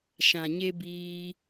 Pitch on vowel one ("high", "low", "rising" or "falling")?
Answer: low